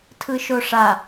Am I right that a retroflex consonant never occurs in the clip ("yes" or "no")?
no